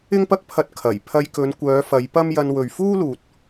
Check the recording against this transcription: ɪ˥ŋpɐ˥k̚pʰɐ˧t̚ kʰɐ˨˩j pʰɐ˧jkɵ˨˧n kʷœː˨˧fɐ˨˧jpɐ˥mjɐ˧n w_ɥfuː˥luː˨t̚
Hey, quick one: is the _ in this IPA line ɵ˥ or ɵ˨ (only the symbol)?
ɵ˨